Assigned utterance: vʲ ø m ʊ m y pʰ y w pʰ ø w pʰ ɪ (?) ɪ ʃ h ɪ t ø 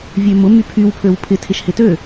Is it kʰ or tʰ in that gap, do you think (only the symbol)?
tʰ